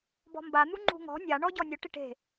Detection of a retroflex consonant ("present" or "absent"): present